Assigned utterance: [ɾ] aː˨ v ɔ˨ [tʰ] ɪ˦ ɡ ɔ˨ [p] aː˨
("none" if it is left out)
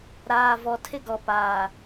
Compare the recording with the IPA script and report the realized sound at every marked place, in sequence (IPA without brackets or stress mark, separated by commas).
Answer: ɾ, tʰ, p